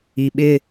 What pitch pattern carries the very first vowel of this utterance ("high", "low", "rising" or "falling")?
low